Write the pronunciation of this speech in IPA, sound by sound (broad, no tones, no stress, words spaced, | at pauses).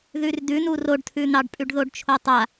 ðʉrdʉnu roɖtʰʉn̪ɑɖpʼʉɖ ðoɖt͡ʃʰotˤa